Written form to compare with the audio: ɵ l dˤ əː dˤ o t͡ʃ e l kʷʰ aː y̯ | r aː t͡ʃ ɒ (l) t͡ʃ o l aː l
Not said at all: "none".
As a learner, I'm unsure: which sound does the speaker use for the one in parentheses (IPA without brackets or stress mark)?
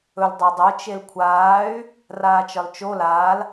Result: l